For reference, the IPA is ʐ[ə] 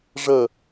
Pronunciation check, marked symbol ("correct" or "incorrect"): correct